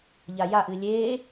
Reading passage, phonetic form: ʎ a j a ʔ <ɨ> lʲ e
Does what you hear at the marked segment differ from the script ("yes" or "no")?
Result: no